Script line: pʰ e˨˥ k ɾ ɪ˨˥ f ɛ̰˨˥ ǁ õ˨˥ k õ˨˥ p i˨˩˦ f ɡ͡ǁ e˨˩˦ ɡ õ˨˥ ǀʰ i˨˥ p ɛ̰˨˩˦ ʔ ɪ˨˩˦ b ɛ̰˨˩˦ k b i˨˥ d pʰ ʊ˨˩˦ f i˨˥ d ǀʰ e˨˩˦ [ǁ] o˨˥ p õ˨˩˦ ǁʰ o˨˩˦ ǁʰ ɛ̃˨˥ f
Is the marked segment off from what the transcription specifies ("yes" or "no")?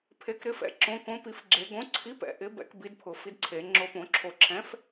yes